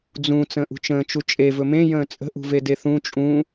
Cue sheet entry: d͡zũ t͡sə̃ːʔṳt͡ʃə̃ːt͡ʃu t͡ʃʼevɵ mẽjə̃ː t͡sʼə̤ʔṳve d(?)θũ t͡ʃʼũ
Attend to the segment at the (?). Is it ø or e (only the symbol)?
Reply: e